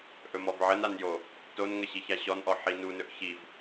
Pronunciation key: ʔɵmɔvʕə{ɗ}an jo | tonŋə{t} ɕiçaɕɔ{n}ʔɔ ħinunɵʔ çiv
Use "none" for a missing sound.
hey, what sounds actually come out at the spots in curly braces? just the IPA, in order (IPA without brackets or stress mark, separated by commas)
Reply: n, none, n